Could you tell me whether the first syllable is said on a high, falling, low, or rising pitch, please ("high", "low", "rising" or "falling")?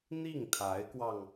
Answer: falling